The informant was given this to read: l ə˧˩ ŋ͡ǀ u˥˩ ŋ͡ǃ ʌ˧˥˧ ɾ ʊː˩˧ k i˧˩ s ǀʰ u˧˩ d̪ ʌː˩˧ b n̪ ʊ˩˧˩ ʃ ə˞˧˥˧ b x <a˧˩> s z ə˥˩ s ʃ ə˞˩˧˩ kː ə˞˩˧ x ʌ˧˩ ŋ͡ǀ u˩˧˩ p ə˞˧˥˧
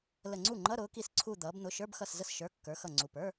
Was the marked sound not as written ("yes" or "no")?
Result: yes